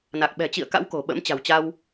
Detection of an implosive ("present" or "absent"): present